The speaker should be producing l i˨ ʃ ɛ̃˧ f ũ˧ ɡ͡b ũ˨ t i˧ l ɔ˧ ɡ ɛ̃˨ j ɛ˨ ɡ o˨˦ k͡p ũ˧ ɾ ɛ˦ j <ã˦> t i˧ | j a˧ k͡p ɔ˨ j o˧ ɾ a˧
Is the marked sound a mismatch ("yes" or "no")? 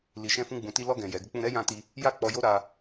yes